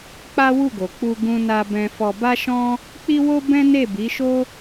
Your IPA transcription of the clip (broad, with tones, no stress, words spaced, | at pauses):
k͡pa˦wu˦˨ɡo˨ k͡pu˧ɡũ˧na˧bɛ̃˧ fɔ˧ ba˦ʃɔ̃˦ | k͡pi˦wo˦ bɛ̃˦ ne˦˨bi˨˦ʃo˦